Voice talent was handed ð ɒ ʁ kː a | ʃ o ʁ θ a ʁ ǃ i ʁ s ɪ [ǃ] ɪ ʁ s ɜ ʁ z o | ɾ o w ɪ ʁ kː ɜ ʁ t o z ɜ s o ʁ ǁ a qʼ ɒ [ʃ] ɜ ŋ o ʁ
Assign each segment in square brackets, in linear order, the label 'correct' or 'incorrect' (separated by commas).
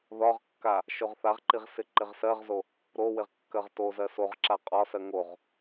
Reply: correct, incorrect